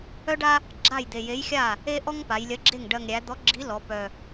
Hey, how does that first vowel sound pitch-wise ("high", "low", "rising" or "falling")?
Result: high